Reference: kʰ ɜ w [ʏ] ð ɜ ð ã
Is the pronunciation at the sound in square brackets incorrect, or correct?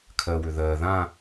correct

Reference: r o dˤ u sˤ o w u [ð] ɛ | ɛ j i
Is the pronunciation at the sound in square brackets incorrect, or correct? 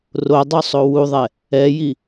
incorrect: ðˤ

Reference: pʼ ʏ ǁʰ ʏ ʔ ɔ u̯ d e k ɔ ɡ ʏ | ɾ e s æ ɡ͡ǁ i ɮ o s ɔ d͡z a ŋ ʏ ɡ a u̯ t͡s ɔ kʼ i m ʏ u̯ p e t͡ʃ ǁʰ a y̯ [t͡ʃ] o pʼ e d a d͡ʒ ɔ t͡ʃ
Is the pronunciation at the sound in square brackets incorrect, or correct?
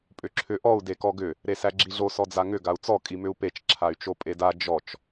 correct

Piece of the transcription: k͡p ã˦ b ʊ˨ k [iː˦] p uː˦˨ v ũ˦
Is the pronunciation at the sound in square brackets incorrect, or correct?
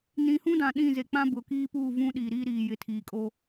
correct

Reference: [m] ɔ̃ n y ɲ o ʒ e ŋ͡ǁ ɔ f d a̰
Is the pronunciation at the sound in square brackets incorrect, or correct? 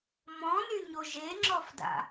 correct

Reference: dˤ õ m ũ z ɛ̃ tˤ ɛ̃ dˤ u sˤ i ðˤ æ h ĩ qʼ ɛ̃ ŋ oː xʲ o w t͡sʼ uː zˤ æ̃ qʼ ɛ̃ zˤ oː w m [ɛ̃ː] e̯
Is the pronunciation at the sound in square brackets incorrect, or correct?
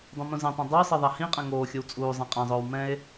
incorrect: ɛ̃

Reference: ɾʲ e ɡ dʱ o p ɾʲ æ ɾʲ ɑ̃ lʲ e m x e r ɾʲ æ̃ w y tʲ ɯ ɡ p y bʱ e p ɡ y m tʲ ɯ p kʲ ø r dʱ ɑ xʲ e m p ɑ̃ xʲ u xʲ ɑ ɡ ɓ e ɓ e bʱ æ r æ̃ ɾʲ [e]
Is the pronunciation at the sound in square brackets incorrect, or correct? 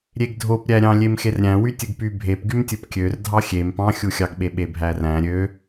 incorrect: ø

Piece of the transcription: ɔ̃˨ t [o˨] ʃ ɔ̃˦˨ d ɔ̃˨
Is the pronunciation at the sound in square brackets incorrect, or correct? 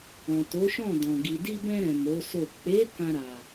incorrect: o˨˦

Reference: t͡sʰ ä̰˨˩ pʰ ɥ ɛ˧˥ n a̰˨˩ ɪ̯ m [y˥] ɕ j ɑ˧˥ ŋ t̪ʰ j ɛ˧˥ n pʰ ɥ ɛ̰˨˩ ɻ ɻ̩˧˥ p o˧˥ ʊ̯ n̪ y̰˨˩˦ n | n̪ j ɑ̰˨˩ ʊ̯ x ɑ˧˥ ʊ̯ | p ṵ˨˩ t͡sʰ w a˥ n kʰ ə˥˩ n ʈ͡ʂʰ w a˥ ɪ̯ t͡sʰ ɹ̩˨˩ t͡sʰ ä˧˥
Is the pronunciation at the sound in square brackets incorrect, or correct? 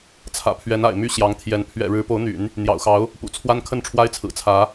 correct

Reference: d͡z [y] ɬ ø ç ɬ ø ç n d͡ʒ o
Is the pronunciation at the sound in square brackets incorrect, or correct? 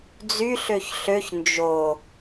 correct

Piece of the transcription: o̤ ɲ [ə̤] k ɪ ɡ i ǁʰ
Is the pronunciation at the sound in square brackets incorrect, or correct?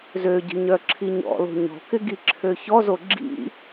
incorrect: ɔ̤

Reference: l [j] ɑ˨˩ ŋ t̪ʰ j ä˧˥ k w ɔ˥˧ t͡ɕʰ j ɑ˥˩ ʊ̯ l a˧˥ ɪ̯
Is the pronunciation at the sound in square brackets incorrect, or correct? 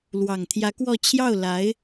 incorrect: w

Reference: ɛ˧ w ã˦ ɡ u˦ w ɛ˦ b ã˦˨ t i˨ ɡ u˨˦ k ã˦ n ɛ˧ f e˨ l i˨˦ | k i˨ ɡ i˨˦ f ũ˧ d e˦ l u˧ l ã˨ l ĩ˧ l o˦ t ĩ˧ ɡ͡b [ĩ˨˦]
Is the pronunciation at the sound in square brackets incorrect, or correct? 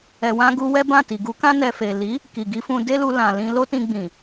incorrect: ĩ˨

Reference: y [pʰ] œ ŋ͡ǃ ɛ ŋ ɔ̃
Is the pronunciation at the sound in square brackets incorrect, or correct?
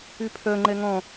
correct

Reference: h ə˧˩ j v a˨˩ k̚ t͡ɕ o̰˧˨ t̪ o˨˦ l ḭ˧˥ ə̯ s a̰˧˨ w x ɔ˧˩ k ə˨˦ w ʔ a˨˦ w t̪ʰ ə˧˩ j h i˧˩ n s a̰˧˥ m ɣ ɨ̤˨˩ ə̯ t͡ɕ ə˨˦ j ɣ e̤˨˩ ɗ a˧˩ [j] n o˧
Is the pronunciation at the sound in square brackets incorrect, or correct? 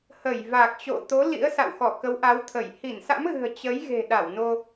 incorrect: w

